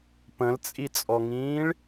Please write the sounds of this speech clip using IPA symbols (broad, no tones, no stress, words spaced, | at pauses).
pə̃lt͡sʼit͡sʼɔŋĩːɭ